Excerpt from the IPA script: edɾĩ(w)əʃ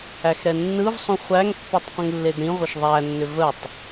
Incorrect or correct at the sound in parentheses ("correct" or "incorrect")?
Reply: incorrect